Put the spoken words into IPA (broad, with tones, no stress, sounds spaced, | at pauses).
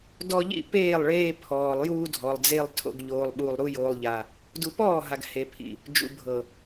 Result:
d ɔ˦ ʎ ḭ˦˨ p eː˦˨ lˠ ɭ eː˦ pʰ ɔː˨ lˠ j uː˦ dʱ ɔ˨ lˠ d͡z e˦ lˠ tʰ o̰˦ ɡ ʎ oː˦ lˠ ɓ uː˦ lˠ ɾ u˦ j oː˦ lˠ ʎ a˦ | d u˦ p ɔː˦˨ ɦ a˨ ɡ h e˨ pʰ ḭ˨ | d͡ʒ ṵ˨ bʱ ɤ˨